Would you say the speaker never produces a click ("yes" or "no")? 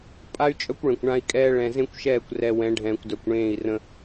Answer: yes